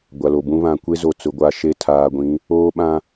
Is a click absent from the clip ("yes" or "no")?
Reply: yes